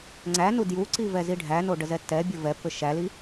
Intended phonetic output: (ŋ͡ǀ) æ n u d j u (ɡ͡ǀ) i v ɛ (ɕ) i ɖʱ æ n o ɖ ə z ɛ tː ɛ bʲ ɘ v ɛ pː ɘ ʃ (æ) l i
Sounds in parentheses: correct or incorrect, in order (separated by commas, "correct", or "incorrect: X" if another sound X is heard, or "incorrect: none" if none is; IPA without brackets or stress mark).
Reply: correct, incorrect: ǀ, incorrect: z, correct